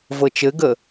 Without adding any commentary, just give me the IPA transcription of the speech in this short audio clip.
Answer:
vɤt͡ʃɘɡə

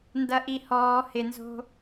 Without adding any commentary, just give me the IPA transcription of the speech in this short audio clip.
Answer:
ndɐʔihɔː hɪnzo̤

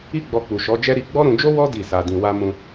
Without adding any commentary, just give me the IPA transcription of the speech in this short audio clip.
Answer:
i˦ɡ͡bɔ˧k͡pu˨ ʃɔ˨˦d͡ʒɛ˦ ɾi˧ɡ͡bɔ˦ ɾũ˧d͡ʒo˦ wɔ˦ di˦˨sa˧dĩ˧ wa˧mũ˧

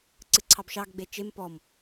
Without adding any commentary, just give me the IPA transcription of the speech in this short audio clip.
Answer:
ǀɨǀʰɑbʃɑɡ ɡ͡bet͡ʃem pɔm

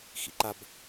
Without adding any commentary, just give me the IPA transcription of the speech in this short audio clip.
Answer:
xḭǃab

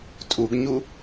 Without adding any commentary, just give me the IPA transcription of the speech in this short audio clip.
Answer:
tʼuɡɲu

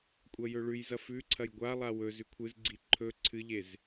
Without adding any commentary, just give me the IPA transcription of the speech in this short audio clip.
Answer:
kʷʼɐjɵɭʉjzɐ fʉǀʰɐj ɡʷalˠa wɵ zʉkʷʰɨzɡ͡ǀi ǃʰɵ ǀʰɨʎez

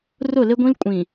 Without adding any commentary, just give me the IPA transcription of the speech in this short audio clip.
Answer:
rʊ˦˨lɪ˦ɡʷĩ˦l kʷʼĩ˨

